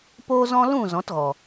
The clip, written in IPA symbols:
poː˦zɔ̃˦ lũ˦˨ zɔ̃˨˦tɣɔ˨

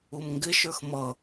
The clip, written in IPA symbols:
umŋɡɪʃə˞x mʌ

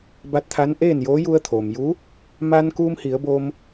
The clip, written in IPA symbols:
ba˧˥t̚t̪ʰa˧˥nʔeː˥˨njoː˧˥ ju˧ə̯t̪ʰoː˩m juː˧˥ | maː˧nkuː˧mhi˩˧ə̯boː˧m

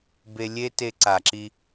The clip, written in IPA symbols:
be˧ lʲe˦te˧ ǀa˨ǁi˧

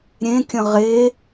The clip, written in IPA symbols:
ɾʲẽkʲə̃ ʁe

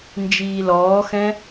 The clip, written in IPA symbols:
nd͡ʒiːlɔːxɛ̃

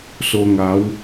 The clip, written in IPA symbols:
so˧ŋa˨˦w

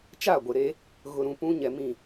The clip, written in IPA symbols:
t͡ʃa˦˨ɡʷe˨ ɾe˦ | ɣʊ˨ɾũ˨pũ˦ ɲɛ˨mĩ˦˨

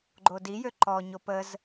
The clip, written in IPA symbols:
ɡ͡ǃodijø ǃɔ ɲopəz

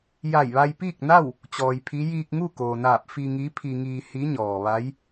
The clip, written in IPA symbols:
ja˧˩jʋa˧jpiː˥˨k̚ na˥˨w | t͡ɕɔː˩jpʰi˧˥ jiː˧k̚ŋu˥˨koː˩naː˧˩p̚ fi˧ŋi˧˥ pʰi˧ŋiː˧ hi˧˥ɲɔː˩ ʋa˧˥j

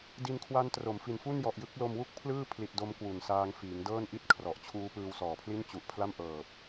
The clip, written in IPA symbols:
di˧nkʰwa˦˥ntro˩˦m fi˩˦nfu˥˩njɔ˨˩ʔjɯ˦˥k̚ lo˧mwu˥˩k̚pʰlɯː˥˩ pʰli˨˩t̚do˧m kwu˨˩nsaː˧ŋfiː˩˦ŋdɤː˥˩n ʔi˥˩t̚ kʰrɔ˨˩ʔt͡ɕʰuː˦˥ pɯː˧wsɔː˨˩pʰli˥˩n t͡ɕu˨˩ʔpʰla˥˩mʔɤː˨˩p̚

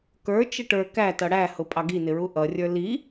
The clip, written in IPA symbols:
kə˞ t͡ʃəʈə˞ kætʌ ɽæhʊ pʼɑɡinɪɹu ʔʌrʲə˞ li

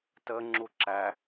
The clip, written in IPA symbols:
tə ŋ͡ǁuǁæ

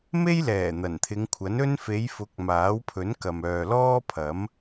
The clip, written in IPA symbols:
me˥jlɛː˨˩ n̪ɐ˨˩nt̪ʰɪ˨˧ŋkʷʰɐ˨˥nɵ˥n fe˨˧jfʊ˨˥k̚ maː˨˥wpʰɵ˨˥nkɐ˨mœː˨ lɔː˥pʰɐ˨˥m

